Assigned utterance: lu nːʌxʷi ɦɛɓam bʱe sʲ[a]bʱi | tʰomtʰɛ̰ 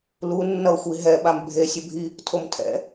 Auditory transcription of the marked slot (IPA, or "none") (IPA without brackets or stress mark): ʌ